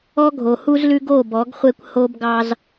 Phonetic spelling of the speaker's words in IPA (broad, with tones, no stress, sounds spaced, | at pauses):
ɔ˦ ɡʱ o˨ h u˦ z l ʉ˦ ɡ o˦˨ b ɔ˨˦ ɡ χʷ e˦ kʷ h o˦ b ɡ ɑ˦ z